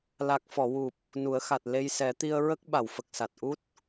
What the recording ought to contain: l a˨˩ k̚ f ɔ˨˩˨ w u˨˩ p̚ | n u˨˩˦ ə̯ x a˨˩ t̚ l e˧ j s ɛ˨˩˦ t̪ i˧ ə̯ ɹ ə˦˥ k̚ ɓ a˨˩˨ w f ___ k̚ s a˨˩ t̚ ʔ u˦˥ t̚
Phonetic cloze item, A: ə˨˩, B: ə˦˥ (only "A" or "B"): A